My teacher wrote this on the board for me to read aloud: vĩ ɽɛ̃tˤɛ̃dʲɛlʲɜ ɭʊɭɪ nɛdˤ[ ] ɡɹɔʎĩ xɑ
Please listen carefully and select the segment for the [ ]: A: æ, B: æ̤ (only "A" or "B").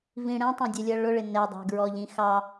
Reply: B